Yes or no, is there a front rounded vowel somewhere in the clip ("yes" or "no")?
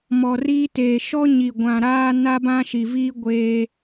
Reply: no